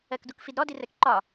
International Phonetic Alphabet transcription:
ɜ k d u k f i d ɾ ɔ d i r ɛ k ǃ ɒ

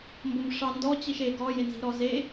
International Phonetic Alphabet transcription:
m b o m ʂ ɑ n d ɔ t͡ɕ i ʃ e ɡ ɔ j e n z i̤ ɾ ɔ z e

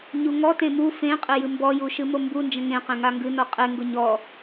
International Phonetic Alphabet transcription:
ɲ u ŋ ɔ t ẽ m u f ẽ qʼ e j ɨ m b ɔ j u ʃ ɨ m o m b u n d͡ʒ ə̃ ŋ ẽ q ẽ ŋ a ŋ ɡ ɨ n ɔ qʼ e ŋ ɡ ʊ ɲ ɔ

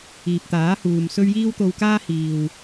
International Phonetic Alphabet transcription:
iː˨ p̚ t̪ aː˨˥ h uː˨ m s ɵ˥ ɥ j iː˥ w t̪ o˧ w k aː˥ h iː˨ w

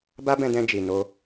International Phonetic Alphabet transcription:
b a˦ b ɛ̃˧ d ɛ̃˧ d͡ʒ i˨ n o˧

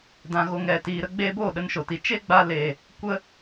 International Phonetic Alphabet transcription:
d ã˨ ɣ o˨ ŋ ɛ˨ t iː˨ ɾ ə˧ ɡ͡b eː˧ b oː˦˨ ɗ ə˧ n ʃ o˨ t i˨ t͡ʃ e˦ ɡ͡b a˧ l e˨ | kʷ ə˧

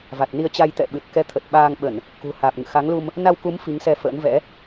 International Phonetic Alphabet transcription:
v a˨˩ t̚ n i˧ ə̯ t͡ɕ a˧ j t̪ ɛ̰˧˨ ɓ ɨ˨˩ t̚ k ɛ˧ t̪ʰ ə˨˩ t̚ ɓ aː˧ ŋ ɓ ə˧˩˨ n | k ṳ˨˩ h aː˨˩ p̚ ŋ ɨ̰˧˨ x a˨˦ ŋ l u˧ m | n a˧ w k u˨˦ m f i˨˦ ŋ s ɛ˧ f ə̰ː˧˥ n v ɛ̰˧˥

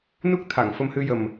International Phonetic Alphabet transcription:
n u˦˥ k̚ t̪ʰ a˨˩˨ ŋ f ə˧ m h ɨ˧ j ə˨˩ m

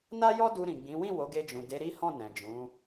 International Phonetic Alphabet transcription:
n a˦ j ɔ˦ d u˧ ɾ ĩ˨ ɡ͡b ĩ˨˦ w ĩ˦˨ w o˨˦ ɡ e˧ d͡ʒ ũ˨ d e˨˦ ɾ i˦ h ɔ̃˦˨ n ɛ̃˨ d͡ʒ ũ˨˦

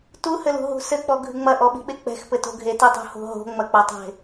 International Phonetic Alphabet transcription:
t u h ɘ l ṳ ɦ ṳ s ɘ k͡p ɔ ɡʱ ɨ ŋ͡m ɐ ʔ ɔ ɓ i̤ ɓ e k͡p ɛ̤ x p ɘ t o̤ ɡʱ e t i tˤ ṳ h o̤ ɦ o̤ ŋ͡m ɐ k͡p ɐ tˤ e̤

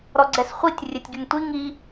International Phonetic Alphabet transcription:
ɾ ɔ ɡ͡ǀ ɛ s χʷ i tʲ rʲ e tʲ ɡ y ŋ tʷ i ŋ i

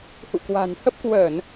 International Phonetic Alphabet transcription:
h ṵ˧˨ k w a̤˨˩ n h ə˦˥ p̚ k w əː˧˩˨ n

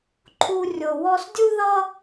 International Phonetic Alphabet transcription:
ǃʰ u˥ rʲ o˧ w ɔ˥ s dʲ u˥ ð ʌ˥

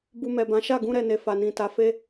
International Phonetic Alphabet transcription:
b u˧ m ɛ˨ b ã˨˦ ʃ a˦˨ ɡ ũ˧ ɾ ɛ˨ n e˨ f a˨ n ĩ˨ t a˨˦ f e˦

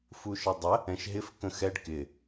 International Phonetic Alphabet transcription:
f u ʃ ə dˤ ə | ɛ̃ ʃ ɦ ɪ f k ə̃ x ɛ ɖ k ɪ

